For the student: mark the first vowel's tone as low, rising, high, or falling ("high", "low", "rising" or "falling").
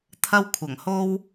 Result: high